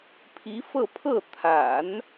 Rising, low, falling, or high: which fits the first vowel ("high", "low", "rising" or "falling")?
rising